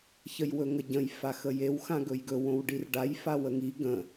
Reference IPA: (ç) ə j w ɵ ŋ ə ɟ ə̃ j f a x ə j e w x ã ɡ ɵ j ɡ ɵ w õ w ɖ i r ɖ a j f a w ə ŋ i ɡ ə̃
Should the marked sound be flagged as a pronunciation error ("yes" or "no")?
no